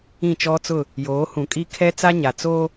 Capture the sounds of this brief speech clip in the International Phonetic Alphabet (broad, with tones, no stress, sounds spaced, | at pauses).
ĩ˦˨ t͡ʃ ɔ˦ t͡s ʊ˦˨ | j oː˨˦ h ũ˨ kʼ i˦ kʰ ɛ˦ t͡s a˦ ɲ a˨ t͡s oː˦